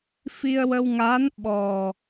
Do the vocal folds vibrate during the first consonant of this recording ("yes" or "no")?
no